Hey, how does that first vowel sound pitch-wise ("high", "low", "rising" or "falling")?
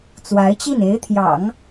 rising